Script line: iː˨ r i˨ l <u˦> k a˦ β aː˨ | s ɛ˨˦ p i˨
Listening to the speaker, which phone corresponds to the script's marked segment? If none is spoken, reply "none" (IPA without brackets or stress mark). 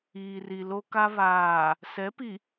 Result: o˦